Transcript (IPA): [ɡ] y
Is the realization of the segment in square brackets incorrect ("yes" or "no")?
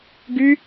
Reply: no